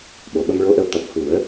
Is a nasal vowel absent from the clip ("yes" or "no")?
yes